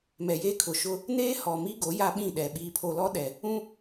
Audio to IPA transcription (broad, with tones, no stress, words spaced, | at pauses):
mɛ˨jeː˦kʰʊ˨ʃʊ˦ | neː˦hɔ˨mi˦ɡo˨˦ ja˦ɓĩ˦˨ɗɛ˨ ɓiː˨pʰo˨lɔ˦ ɗɛ˨ | ũ˦